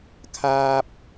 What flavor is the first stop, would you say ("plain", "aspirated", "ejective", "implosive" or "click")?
aspirated